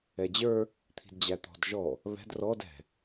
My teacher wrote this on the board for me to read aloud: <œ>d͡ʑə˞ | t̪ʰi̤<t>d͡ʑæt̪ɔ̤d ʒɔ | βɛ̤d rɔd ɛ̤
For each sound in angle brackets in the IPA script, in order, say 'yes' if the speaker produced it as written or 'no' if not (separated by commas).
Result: no, no